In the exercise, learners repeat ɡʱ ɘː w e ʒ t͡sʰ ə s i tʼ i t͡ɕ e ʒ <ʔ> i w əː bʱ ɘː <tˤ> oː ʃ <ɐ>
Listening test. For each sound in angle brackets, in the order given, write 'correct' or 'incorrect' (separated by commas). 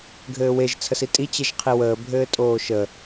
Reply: incorrect, incorrect, incorrect